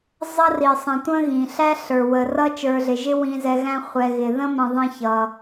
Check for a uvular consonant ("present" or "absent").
present